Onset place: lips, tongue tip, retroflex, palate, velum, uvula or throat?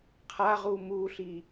uvula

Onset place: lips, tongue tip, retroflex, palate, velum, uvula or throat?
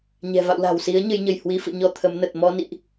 palate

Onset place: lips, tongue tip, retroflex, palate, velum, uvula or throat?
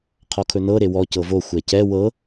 uvula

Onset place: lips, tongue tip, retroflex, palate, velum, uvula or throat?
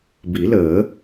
lips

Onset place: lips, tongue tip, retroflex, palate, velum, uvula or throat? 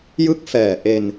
palate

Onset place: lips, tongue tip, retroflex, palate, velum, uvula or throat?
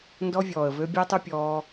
tongue tip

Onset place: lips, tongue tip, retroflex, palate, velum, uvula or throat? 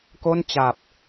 velum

